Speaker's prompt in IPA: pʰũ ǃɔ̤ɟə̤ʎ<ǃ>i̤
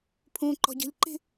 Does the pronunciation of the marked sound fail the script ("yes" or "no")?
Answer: no